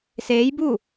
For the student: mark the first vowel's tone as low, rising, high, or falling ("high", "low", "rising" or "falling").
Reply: rising